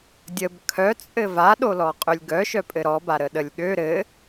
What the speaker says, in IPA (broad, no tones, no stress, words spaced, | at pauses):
dʲəb kʰœt͡sʼɘ vaɗolɔ qʼølʲɡœʃœ pʼɘɾɔbaɾə ɗəlʲɠø ɾɘ